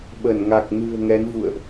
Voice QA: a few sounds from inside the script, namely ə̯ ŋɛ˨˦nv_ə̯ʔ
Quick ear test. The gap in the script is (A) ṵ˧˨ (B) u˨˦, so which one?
A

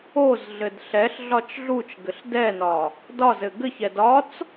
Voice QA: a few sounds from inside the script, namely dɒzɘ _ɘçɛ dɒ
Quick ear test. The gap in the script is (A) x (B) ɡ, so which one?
B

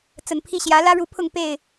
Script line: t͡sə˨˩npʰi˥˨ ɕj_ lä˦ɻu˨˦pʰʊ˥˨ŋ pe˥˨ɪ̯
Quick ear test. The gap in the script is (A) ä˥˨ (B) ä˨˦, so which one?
B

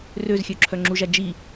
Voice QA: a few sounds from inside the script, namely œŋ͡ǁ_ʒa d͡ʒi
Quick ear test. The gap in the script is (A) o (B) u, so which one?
B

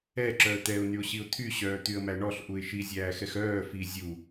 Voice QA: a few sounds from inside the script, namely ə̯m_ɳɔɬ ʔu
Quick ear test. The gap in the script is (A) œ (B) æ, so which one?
B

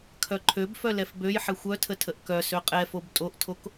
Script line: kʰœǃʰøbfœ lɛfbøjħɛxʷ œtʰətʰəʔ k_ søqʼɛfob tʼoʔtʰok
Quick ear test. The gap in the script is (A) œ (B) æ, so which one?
A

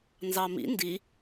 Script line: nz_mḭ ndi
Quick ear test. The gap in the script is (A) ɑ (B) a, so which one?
A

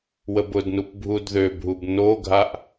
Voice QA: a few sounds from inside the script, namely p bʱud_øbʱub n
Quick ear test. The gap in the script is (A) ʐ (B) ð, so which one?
B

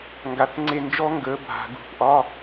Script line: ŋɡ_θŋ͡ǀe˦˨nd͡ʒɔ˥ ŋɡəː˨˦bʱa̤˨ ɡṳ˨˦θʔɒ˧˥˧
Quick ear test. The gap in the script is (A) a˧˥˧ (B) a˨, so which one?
B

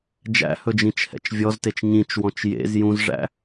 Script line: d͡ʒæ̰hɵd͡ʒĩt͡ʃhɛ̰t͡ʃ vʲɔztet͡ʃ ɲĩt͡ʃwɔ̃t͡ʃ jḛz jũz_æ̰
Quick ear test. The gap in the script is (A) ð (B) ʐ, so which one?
B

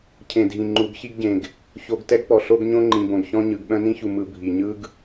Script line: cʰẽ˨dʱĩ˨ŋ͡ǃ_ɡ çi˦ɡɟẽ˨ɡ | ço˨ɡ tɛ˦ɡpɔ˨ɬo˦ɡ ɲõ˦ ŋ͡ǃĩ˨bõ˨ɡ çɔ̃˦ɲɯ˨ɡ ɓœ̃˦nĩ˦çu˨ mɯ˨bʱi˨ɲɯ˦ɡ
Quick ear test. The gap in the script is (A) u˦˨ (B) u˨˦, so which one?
B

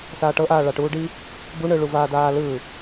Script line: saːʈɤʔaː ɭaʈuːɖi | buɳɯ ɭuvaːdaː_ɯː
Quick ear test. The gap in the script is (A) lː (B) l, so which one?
B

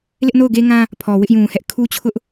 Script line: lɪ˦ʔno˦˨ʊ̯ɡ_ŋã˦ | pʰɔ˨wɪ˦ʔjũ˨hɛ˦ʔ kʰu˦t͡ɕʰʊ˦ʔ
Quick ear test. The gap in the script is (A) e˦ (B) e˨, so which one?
A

